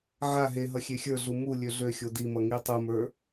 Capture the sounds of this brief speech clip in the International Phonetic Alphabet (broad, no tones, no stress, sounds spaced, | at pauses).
ʕ a ɦ e ɦ ʌ xʲ e xʲ ə˞ ɮ u m u lʲ ø ɮ ø xʲ o d i m ʌ ŋ i tˤ u m ə˞